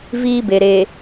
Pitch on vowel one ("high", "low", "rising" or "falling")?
high